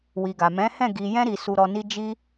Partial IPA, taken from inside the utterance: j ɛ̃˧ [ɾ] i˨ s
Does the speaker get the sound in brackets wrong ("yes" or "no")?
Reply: no